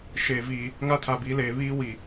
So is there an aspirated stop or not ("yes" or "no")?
yes